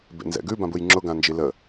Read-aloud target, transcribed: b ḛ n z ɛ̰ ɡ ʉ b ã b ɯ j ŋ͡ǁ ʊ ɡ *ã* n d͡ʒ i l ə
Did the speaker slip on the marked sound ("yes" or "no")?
no